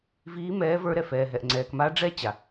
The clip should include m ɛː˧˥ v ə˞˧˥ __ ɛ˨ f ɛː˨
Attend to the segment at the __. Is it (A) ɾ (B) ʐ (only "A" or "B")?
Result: A